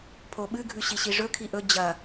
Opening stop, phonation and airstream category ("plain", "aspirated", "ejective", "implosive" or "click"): aspirated